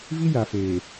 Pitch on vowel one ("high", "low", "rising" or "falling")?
high